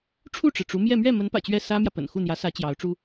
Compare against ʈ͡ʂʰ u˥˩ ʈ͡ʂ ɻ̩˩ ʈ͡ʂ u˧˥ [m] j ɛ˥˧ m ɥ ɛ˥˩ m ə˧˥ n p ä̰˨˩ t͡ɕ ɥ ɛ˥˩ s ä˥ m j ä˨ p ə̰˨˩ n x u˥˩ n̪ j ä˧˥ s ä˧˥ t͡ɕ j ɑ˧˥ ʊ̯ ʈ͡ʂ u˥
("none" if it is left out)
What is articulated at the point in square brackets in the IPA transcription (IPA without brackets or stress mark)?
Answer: m